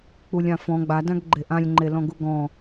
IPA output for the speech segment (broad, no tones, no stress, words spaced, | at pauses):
k͡pulʲãfɔ̃ ɡ͡badãɡ ɡ͡ǃeʔãlʲŋ͡ǃe lɔ̃ɡuɡɔ̃